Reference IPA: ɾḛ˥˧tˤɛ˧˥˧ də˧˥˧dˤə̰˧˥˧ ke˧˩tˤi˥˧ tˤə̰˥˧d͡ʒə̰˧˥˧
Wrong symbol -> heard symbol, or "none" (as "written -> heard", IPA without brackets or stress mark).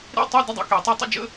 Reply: none